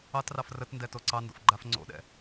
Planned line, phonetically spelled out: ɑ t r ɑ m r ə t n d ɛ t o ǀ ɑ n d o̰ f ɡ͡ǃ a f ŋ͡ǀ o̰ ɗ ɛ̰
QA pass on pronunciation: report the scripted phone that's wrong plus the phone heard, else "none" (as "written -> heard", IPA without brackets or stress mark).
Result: m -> f